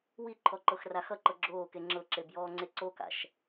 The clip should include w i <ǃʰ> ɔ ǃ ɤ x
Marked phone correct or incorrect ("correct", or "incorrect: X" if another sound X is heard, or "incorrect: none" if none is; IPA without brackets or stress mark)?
correct